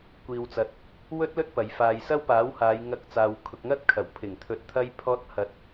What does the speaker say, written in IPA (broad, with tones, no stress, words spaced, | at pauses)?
kʷiː˨wt͡sɐ˨t̚ | wɵ˥t̚lɵ˥t̚ pɐ˨˧j faː˨jsɐ˥wpaː˨˥whaː˨˧j ŋɐ˧k̚ t͡saː˨wkʰʊ˨k̚ŋɐ˥t̚ kʰɐ˨˩wpʰɪ˨˩ŋ t̪ʰɵ˧t̚t̪ʰɐ˥jpʰɔː˥t̚ hɐ˧t̚